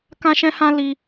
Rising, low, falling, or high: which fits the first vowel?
high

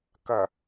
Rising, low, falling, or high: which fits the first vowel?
low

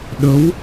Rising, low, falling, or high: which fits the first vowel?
rising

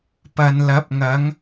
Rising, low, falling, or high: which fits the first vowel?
low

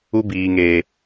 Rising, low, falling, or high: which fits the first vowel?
high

